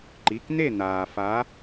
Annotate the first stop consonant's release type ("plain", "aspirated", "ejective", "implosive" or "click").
click